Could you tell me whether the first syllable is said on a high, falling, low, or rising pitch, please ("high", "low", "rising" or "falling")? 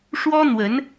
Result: high